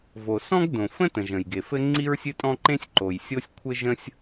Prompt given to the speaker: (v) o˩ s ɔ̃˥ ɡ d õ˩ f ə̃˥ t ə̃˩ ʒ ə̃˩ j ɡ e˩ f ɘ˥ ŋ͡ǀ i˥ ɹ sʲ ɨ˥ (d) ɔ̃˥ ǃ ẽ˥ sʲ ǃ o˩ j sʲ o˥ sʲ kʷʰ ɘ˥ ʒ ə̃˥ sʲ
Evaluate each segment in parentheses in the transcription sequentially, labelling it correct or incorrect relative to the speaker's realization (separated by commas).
correct, incorrect